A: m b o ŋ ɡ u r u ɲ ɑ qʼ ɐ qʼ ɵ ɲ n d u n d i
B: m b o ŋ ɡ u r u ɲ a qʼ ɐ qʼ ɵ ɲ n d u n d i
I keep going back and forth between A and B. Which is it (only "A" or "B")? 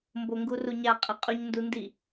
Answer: B